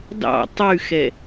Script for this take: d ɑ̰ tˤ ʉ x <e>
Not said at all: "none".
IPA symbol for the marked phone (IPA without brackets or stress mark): ɛ